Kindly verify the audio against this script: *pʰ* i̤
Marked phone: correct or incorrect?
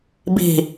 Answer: incorrect